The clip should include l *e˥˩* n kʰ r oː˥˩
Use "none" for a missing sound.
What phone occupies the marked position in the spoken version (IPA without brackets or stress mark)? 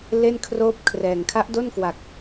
e˥˩